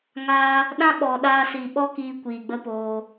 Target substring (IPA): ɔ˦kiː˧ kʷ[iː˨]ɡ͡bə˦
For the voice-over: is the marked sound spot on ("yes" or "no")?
yes